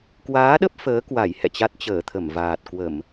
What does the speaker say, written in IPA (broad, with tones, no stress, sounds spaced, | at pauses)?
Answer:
k w aː˨˦ ɗ ə˦˥ p̚ f əː˨˦ k w a˧˩ j h ɛ̰˧˨ t͡ɕ a˦˥ t̚ t͡ɕ əː˧˩ t̪ʰ ə˧˩ m v aː˨˩ t̚ k w ə˧˩˨ m